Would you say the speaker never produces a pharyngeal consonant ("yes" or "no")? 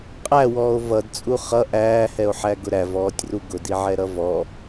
no